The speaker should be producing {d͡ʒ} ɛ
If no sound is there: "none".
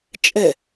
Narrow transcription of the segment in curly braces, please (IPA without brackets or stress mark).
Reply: t͡ʃʼ